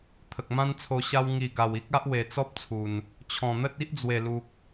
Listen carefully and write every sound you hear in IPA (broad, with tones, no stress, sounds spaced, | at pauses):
t̪ʰ ə˨ k̚ m ã˦ n t͡sʰ o˧ ɕ a˧ w ŋ i˨˩ ɡ a˨˩ w i˦ k̚ a˦ ʔ w e˨˩ t͡s ɔ˦ p̚ t͡sʰ u˨˩ n | t͡ɕʰ ɔ̃˨˩ n̪ ə˦ t̚ i˦ ʔ d͡z w e˨˩ l u˨ k̚